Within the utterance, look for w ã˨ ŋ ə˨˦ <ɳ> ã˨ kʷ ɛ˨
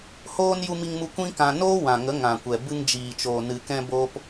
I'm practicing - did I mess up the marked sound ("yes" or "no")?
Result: yes